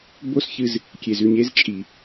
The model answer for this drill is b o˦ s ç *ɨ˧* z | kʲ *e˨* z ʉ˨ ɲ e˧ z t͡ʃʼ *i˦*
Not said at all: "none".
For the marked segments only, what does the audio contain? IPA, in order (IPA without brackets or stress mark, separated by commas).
ɨ˧, e˨, i˨